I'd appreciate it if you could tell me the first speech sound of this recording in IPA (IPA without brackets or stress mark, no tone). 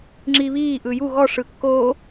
ŋ͡ǁ